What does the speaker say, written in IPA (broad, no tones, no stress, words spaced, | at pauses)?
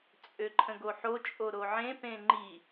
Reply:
t͡sʼøǃʰə̃ɡoħo t͡ʃʼoɾoʕẽ pẽŋ͡ǃi